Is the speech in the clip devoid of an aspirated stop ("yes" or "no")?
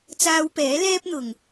yes